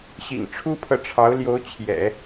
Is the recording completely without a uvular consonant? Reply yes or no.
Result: yes